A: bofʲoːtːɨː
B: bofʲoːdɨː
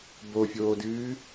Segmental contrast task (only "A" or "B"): B